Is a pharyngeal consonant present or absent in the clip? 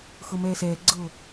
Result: absent